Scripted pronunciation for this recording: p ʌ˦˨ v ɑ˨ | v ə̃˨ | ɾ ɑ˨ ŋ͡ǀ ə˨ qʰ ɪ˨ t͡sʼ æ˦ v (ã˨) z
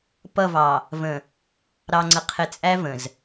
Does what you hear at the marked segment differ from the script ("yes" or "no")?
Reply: yes